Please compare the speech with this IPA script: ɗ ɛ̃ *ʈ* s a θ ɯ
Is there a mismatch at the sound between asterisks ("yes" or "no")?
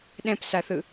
yes